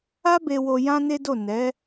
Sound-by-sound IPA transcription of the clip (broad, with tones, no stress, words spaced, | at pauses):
a˦be˧wo˧ jã˦ne˦do˦˨ nɛ˨˦